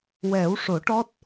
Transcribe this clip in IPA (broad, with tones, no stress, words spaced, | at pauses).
wɛ˨˩˦wʂo˨˩˦ʈɔ˦˥t̚